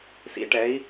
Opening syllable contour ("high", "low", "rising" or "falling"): rising